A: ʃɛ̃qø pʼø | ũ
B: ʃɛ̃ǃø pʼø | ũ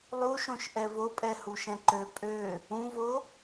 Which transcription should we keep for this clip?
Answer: B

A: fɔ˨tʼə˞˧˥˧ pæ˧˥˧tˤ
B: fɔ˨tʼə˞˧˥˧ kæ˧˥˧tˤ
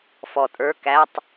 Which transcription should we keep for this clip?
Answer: B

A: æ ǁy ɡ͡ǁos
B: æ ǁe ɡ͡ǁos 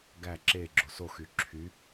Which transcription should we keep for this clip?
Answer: B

